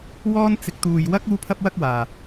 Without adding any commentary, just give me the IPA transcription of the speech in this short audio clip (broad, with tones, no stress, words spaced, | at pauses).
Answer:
wɔː˥n t͡sɪ˧k̚t̪uː˧jwɐ˥k̚ uː˥pʰɐ˥p̚wɐ˥k̚waː˨